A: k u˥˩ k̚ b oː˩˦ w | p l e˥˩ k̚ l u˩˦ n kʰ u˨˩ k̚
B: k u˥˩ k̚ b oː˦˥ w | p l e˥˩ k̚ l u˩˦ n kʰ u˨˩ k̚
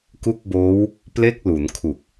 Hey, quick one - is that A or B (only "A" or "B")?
B